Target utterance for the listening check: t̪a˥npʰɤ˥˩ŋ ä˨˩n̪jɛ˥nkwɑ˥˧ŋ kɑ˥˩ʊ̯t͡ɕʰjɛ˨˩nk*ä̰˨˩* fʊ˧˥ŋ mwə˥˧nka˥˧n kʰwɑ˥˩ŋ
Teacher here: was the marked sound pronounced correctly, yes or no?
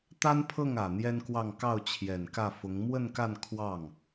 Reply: no